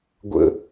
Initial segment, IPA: ɡʷ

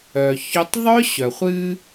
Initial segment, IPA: œ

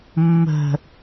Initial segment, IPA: mː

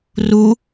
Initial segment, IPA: r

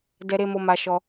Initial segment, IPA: d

